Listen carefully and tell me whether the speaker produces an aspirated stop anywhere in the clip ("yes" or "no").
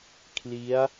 yes